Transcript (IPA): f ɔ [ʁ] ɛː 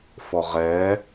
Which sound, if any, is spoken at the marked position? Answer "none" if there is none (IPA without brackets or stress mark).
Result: ʁ